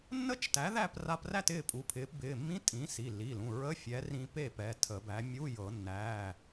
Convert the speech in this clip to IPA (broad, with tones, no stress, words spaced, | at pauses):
nːə˥˨t͡ʃ tæ˩˥ðæ˥˨pra˧præ˥˨t ɪː˥˨pʼu˩˧˩pʰɪː˩˥p bɪː˩˧˩mːĩ˧˥˧ tʼĩː˩˥ si˩˧˩lːi˩˧˩lũ˩˧˩ ɹə˧˥˧fʲɛ˩˥ rĩ˧ pe˥˨pɛ˩˧˩ tʰə˨˩˦bæ˩˥ mʲu˧˥˧jɤ˨˩˦ nːæː˩˧˩